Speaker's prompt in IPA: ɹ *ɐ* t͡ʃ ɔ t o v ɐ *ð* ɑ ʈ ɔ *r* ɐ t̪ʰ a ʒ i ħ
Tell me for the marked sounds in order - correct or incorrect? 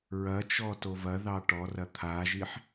correct, correct, correct

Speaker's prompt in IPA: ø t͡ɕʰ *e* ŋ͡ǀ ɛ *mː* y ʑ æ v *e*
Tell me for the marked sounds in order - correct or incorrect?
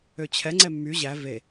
incorrect, correct, correct

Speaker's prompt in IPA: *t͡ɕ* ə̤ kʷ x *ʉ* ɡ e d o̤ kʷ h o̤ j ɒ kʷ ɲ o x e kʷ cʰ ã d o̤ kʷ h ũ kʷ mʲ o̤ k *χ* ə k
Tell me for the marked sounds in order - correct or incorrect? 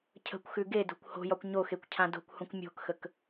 incorrect, correct, incorrect

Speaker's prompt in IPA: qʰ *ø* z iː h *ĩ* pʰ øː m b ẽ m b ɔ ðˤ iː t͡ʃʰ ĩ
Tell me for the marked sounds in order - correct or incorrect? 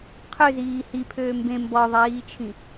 correct, incorrect

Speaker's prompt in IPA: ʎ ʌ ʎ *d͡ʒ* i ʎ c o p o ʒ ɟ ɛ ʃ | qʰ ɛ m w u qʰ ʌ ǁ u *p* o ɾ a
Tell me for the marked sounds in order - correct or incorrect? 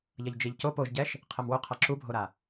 correct, incorrect

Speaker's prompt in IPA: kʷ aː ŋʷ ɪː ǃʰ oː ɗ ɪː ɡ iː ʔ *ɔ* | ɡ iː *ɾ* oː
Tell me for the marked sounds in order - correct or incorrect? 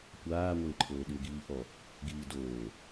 correct, incorrect

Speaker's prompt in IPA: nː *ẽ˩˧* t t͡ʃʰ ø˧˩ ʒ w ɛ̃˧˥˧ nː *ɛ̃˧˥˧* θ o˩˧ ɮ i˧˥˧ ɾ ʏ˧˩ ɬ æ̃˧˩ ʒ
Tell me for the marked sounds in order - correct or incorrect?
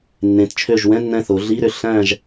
correct, incorrect

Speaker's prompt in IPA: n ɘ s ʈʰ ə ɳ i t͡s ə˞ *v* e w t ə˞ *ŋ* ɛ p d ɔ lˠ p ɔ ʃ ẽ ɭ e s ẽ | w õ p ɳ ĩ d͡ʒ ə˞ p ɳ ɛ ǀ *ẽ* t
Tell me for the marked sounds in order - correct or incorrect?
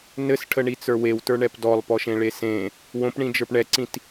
incorrect, incorrect, incorrect

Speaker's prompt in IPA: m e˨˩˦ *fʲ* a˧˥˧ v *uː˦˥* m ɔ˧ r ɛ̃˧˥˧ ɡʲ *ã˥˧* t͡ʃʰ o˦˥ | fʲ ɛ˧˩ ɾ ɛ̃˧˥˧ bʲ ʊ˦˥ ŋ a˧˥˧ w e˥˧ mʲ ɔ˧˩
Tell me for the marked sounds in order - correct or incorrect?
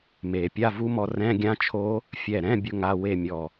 incorrect, incorrect, incorrect

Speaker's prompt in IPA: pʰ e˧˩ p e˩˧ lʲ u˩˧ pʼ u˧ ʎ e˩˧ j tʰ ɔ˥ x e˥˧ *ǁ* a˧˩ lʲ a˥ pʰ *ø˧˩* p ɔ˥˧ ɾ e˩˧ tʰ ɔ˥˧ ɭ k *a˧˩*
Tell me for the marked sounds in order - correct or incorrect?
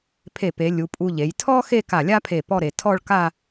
incorrect, incorrect, incorrect

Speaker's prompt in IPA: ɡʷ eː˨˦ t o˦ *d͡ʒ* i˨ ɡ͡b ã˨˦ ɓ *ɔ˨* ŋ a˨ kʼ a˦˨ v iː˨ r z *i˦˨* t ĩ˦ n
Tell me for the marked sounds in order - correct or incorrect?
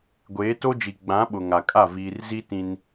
correct, incorrect, incorrect

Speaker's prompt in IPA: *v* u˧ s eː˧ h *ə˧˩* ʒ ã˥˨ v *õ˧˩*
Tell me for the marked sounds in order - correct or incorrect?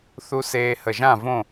incorrect, correct, incorrect

